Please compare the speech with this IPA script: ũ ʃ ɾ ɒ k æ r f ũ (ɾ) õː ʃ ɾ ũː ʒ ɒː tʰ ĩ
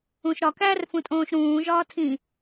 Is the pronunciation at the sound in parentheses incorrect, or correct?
incorrect